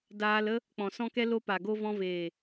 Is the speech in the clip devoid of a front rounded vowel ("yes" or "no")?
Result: yes